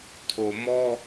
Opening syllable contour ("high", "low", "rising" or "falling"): low